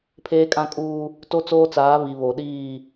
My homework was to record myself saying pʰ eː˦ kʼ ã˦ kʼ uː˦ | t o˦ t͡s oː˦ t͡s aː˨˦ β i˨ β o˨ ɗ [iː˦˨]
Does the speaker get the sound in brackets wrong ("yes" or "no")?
no